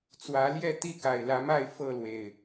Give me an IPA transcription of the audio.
t͡s w ä˨˦ l j ɛ˥˨ t̪ i˥˨ k a˨˩ ɪ̯ l ä˨˦ m a˥˨ ɪ̯ f ɤ˥˨ l w e˨˩ ɪ̯

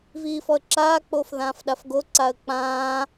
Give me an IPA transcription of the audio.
v iː f ɔ ə̯ ǁ aː k͡p oː f ð ãː f ɗ a f ɡ o ǀ a ə̯ k͡p ãː

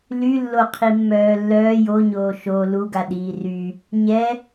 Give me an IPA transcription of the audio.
l y lː o qʰ i mː œː lː œː j o ɲ oː ʃ o l u ɡ a ɗ iː r y | ɲ ɛ

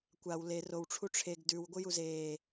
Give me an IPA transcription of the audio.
kʷ a w l e r o w ʈ͡ʂʰ u ʈ͡ʂʰ e ɡ d ʉ w ɡʷ ɨ j u z e

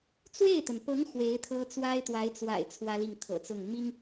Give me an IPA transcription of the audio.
t͡s w e˥˩ ɪ̯ t̪ ə˩ n p ɤ˧˥ ŋ x w e˧˥ ɪ̯ t̪ʰ ɤ˥ t͡s w a˥ ɪ̯ t̪ w a˧˥ ɪ̯ t͡s w a̰˨˩ ɪ̯ t͡sʰ w ä˥ l i˥˩ ŋ t̪ʰ ɤ̰˨˩ t͡s ʊ˥˩ ŋ m i˥ ŋ

